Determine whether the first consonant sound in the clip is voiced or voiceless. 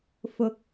voiceless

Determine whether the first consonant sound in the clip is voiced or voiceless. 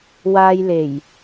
voiced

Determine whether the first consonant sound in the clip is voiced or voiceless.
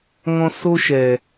voiced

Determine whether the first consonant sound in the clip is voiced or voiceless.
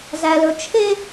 voiced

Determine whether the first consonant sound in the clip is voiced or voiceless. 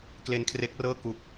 voiceless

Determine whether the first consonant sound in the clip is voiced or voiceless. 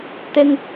voiceless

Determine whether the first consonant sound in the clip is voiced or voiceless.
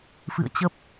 voiceless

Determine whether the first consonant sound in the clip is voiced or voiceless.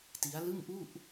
voiceless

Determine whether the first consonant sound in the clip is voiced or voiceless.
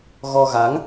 voiced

